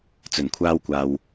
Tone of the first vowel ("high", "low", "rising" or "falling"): low